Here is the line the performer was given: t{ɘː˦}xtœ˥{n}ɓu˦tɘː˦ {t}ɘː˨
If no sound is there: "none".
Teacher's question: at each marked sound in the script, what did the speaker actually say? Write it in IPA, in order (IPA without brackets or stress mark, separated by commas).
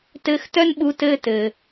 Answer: ɘː˦, n, t